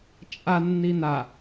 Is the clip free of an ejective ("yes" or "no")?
no